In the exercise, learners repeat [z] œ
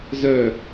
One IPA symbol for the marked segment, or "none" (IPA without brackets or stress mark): z